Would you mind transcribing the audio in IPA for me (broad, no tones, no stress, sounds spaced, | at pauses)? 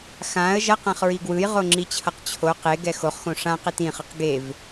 x ã ə̯ ʒ ʌ q ã χ ɹ i ɡ w ɯ j ʁ o ŋ͡ǁ i t͡ɕʰ ʌ q t͡ɕʰ o q e ɡ ɛ x o χ x õ ʂ ã q e t ĩ χ ɯ q ɡ e v